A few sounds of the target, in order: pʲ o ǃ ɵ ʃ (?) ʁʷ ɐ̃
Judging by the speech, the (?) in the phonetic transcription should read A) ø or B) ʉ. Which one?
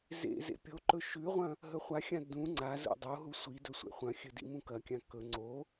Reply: B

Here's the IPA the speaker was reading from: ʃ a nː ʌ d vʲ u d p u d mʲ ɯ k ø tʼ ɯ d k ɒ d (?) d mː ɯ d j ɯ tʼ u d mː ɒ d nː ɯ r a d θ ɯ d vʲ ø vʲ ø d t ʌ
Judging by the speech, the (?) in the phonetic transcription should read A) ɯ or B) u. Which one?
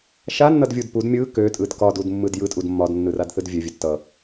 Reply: B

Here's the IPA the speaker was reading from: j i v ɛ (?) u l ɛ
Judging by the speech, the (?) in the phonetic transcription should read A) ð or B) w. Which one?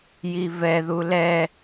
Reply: A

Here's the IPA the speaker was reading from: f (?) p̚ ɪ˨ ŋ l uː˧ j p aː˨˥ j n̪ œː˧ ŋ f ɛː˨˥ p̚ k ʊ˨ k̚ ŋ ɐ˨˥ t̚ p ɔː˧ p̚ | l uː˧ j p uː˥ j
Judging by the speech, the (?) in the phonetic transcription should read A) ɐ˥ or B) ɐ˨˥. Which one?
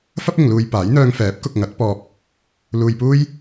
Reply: A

